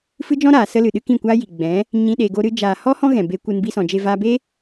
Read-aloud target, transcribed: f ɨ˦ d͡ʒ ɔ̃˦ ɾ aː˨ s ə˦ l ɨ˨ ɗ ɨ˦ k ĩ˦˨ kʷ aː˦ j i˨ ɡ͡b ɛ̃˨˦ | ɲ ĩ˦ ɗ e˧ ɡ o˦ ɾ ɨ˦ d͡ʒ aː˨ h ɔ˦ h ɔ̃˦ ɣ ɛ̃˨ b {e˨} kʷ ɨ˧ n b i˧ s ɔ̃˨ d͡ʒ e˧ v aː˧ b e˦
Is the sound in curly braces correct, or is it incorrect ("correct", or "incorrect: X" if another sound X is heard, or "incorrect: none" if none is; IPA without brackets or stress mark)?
incorrect: e˧